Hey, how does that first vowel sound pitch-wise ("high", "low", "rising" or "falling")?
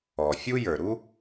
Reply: low